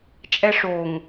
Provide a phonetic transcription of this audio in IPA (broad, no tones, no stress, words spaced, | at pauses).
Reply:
t͡ʃʼɛʂoŋ